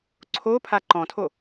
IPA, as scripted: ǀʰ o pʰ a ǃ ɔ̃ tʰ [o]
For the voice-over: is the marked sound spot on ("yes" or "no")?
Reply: yes